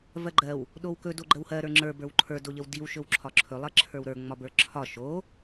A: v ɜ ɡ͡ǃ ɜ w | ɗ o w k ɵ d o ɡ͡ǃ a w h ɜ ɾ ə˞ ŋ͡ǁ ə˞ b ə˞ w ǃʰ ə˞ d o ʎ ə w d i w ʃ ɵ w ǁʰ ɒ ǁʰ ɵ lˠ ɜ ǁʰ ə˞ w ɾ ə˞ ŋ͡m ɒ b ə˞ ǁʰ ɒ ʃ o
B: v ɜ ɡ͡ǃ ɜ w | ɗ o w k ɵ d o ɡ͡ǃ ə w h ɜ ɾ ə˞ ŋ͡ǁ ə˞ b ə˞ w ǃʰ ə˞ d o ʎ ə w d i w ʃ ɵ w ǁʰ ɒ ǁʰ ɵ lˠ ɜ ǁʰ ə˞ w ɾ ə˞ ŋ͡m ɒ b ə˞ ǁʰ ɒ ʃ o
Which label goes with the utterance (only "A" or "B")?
B